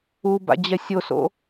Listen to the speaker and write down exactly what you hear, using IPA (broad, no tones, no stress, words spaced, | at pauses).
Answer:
uba̰ d͡ʑɛsʲoso̰